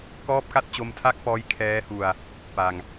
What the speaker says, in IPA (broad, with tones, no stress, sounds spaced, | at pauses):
k ɔː˥˩ p̚ k a˥˩ t̚ t͡ɕ o˦˥ m tʰ a˥˩ k̚ p ɔː˦˥ j kʰ ɛː˦˥ h u˧ a̯ | p a˧ ŋ